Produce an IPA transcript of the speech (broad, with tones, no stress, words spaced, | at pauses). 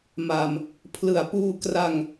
ma˧m | pʰlɯ˩˦a̯ puː˧ kra˧ŋ